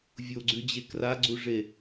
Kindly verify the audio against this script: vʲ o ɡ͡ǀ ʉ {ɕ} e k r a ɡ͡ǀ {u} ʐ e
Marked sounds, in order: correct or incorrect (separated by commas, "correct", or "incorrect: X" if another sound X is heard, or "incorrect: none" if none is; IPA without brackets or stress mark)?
incorrect: d͡ʑ, correct